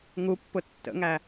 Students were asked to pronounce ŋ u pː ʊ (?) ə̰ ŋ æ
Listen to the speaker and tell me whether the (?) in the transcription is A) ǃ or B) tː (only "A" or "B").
B